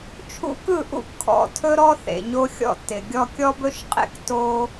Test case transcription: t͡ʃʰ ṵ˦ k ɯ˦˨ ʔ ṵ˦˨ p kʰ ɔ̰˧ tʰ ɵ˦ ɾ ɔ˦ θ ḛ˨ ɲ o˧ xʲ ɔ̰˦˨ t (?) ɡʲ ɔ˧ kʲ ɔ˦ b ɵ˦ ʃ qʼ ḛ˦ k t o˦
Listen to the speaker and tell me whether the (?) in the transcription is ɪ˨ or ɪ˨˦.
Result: ɪ˨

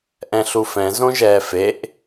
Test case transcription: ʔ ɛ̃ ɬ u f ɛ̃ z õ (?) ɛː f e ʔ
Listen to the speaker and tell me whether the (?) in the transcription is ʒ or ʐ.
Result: ʒ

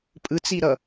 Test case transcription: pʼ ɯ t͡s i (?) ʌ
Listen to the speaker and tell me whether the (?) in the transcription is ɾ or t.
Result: ɾ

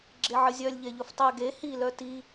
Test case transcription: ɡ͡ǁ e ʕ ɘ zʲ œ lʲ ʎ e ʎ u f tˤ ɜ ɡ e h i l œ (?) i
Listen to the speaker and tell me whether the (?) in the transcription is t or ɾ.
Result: t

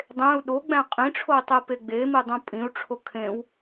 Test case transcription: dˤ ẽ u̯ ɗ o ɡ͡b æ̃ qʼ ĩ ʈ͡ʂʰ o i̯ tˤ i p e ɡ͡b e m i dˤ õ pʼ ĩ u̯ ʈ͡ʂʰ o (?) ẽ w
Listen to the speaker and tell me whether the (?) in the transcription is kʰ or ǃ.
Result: kʰ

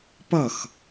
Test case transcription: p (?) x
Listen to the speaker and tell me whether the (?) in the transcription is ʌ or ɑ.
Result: ʌ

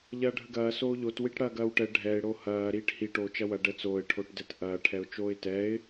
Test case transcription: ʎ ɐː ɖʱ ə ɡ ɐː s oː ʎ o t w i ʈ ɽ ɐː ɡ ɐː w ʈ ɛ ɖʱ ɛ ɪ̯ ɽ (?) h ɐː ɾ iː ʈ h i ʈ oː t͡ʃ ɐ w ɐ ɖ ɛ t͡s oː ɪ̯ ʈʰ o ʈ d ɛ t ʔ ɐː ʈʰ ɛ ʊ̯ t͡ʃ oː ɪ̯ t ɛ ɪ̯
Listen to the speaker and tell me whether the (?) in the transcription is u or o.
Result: o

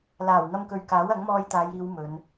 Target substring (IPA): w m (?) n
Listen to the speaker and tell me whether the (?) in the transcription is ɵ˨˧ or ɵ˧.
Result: ɵ˨˧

